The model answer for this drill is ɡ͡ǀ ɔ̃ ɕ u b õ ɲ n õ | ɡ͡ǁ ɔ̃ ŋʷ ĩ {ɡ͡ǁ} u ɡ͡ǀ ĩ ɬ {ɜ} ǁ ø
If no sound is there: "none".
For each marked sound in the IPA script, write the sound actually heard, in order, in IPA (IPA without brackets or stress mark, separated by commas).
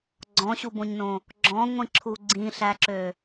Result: ǁʰ, æ